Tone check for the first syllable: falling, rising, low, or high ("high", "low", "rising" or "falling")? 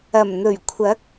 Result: low